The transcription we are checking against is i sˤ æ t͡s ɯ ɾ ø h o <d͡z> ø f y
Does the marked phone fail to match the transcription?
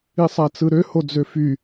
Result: no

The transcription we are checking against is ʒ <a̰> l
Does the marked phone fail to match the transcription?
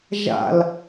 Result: no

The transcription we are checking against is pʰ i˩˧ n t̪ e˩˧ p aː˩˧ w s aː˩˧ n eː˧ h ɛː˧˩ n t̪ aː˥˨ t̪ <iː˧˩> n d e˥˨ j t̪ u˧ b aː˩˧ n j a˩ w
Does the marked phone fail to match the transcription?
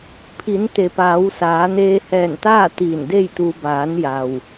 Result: no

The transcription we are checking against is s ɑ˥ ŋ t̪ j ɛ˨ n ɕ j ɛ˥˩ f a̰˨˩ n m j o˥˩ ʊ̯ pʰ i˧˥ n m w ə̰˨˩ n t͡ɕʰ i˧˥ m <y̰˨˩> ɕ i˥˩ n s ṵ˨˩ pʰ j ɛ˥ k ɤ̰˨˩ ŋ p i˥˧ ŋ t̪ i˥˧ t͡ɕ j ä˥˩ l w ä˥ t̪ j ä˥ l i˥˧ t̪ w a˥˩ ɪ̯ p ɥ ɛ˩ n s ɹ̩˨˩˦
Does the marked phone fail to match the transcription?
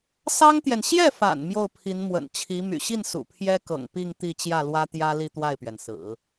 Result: no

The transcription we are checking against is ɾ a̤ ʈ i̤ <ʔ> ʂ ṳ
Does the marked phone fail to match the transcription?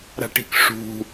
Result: yes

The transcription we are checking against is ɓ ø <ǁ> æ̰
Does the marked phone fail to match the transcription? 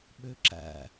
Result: no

